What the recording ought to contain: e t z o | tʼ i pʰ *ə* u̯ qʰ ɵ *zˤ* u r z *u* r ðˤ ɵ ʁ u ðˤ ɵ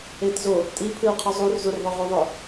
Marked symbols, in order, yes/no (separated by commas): no, yes, yes